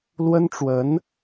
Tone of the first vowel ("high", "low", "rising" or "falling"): high